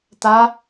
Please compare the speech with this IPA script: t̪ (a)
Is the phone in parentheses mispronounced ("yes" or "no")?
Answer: no